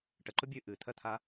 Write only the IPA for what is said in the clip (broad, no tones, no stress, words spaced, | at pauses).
ʈəǃʊ bʲɨ ʔɨt̪ʰɜt̪ʰa